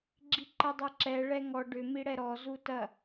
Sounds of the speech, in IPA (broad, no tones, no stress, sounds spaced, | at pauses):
ɡ͡ǁ i ǃ ɛ dˤ ɛ ǁ ɛ ɭ ɛ ŋ ɔ ɖ ʏ m i ɽ ɛ ɾ ɔ z u t ɐ